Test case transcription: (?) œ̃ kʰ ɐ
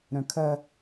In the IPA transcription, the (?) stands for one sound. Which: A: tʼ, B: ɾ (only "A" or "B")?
B